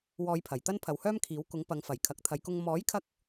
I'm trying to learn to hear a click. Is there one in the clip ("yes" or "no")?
no